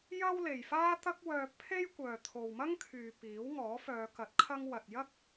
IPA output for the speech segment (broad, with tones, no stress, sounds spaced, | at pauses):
j ɐ˥ w l e˨ j f aː˥ t̪ ɐ˥ k̚ w œː˧ pʰ e˥ j kʷ œː˨ t̪ʰ o˨ w m ɐ˥ ŋ kʰ yː˨ p iː˨˥ w ŋ ɔː˨˥ f œː˨˧ k ɐ˨˥ t̚ kʰ ɐ˧ ŋ w ɐ˨ t̚ j ɐ˥ k̚